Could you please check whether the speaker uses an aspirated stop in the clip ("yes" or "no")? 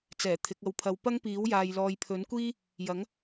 yes